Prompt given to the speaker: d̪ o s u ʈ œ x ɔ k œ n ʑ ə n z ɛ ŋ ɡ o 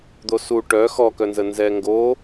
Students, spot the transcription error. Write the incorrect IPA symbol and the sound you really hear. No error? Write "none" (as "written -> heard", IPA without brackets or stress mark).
ʑ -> z